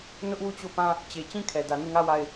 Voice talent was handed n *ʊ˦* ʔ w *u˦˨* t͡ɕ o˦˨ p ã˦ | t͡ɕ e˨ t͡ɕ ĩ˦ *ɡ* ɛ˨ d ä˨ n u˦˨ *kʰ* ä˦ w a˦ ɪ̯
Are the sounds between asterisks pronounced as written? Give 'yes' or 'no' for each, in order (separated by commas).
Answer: yes, yes, no, no